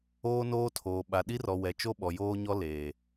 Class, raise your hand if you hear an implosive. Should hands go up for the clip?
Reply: yes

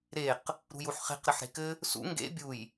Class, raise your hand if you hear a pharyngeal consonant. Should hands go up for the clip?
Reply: yes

